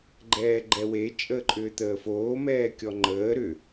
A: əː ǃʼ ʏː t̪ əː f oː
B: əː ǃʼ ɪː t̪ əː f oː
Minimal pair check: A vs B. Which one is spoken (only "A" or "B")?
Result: A